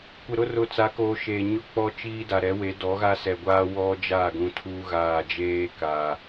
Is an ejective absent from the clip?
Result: yes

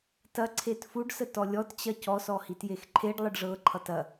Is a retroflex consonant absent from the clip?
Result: no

